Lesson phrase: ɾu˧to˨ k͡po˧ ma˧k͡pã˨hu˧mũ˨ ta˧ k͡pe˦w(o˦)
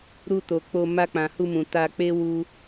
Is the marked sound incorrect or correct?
incorrect: u˦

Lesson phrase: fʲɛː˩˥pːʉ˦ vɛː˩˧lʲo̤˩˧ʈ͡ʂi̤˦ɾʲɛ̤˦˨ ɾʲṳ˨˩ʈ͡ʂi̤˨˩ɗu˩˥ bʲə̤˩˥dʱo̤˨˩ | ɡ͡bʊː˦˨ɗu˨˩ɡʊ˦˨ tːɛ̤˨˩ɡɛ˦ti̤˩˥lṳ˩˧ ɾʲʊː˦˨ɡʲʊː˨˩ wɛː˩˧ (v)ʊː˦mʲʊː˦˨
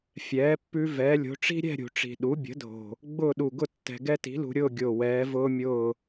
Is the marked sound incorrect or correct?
correct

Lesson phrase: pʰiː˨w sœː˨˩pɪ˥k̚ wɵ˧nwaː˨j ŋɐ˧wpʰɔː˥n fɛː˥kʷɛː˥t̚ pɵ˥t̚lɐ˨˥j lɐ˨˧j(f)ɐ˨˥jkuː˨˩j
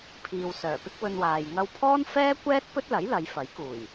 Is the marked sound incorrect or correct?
correct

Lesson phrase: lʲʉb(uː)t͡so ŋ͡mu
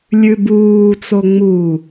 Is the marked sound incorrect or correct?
correct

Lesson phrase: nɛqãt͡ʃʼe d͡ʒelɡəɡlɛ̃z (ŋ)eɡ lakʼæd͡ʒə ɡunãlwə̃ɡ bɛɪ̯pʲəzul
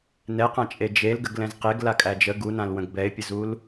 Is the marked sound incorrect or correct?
incorrect: q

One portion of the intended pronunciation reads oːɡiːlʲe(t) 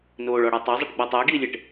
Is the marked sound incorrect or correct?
incorrect: ʈ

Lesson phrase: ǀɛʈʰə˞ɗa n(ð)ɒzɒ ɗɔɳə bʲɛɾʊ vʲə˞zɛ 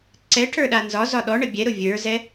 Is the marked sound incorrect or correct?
incorrect: z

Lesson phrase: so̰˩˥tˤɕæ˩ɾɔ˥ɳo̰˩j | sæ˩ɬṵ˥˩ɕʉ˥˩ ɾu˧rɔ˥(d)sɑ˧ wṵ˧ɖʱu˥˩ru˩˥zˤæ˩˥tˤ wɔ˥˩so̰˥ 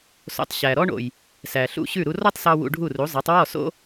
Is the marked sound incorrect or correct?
incorrect: tˤ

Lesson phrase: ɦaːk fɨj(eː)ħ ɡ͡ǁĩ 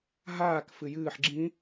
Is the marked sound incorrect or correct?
incorrect: ɨː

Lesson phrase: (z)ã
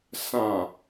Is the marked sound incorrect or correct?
incorrect: s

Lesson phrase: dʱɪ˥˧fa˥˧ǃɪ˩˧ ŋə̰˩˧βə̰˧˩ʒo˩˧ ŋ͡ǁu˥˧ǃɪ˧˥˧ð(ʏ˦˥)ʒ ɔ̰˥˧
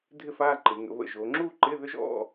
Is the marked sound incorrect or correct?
correct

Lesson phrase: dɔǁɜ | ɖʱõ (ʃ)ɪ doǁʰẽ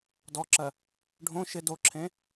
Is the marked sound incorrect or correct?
correct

